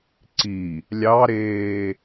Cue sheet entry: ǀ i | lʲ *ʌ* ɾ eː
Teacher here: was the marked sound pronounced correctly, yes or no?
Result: no